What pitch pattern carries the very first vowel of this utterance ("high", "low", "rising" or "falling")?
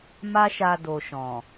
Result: high